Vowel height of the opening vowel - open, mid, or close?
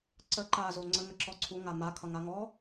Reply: mid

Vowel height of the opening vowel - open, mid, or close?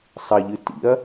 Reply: open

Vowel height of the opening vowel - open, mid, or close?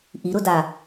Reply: close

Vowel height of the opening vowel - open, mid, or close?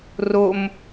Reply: mid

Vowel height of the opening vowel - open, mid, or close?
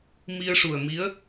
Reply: close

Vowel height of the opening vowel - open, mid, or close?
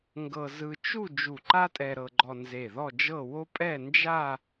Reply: mid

